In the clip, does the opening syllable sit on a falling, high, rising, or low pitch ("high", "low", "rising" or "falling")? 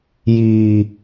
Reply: low